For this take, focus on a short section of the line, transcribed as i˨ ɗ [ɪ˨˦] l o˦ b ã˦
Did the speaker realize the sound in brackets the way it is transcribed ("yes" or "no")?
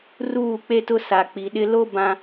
no